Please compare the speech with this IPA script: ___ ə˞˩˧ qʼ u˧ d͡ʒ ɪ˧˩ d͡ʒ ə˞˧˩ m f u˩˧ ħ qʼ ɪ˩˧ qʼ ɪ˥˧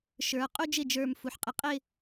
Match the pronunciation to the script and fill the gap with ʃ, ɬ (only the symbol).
ʃ